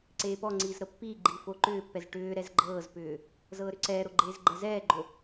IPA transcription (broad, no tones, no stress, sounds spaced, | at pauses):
ǀ eː p ɔ ŋ͡ǀ iː z ɾ ɤ pː iː ɡ͡ǃ iː f o ǃ ʏː pː ɛ z ʈ ʏː ɾ ɛ z ɡ͡ǃ ɤː z p ʏː | z ɤː ɾ ʏ ǀ ɛː ɾ o ɡ͡ǃ eː z ɡ͡ǃ ɛ z ɛː ɡ͡ǃ o